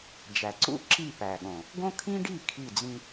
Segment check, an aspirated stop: present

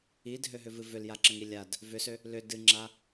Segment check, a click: present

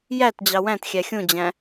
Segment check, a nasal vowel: present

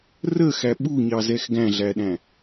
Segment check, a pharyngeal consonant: absent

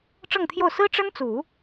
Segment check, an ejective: absent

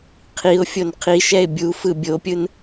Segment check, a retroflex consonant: absent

